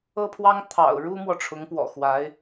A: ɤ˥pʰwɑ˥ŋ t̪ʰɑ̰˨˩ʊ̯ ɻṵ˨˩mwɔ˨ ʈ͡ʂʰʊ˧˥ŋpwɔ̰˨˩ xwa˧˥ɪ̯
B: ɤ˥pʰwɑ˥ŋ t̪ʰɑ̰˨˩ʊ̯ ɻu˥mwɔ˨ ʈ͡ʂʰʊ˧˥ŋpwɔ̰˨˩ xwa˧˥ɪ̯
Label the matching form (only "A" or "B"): B